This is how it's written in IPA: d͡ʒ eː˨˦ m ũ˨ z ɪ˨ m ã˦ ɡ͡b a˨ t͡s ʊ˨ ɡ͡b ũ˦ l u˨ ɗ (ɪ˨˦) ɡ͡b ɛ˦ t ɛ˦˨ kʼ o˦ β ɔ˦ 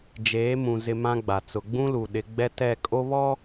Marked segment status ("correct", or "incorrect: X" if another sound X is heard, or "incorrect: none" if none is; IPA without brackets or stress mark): correct